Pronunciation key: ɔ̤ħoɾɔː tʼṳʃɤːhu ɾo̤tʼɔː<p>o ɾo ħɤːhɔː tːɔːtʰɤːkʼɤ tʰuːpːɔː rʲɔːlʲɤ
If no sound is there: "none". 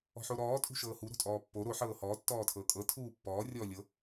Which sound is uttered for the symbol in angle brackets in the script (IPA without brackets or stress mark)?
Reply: pː